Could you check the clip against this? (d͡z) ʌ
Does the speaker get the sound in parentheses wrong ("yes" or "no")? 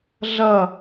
yes